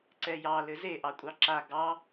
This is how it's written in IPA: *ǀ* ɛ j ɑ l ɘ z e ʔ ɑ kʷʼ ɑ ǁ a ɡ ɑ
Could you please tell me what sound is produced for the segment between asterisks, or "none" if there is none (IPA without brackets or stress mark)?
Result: ǀ